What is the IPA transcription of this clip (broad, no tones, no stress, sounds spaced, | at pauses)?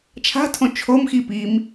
t͡ʃʰ a̤ tʰ õ t͡ʃʰ o m x i p i m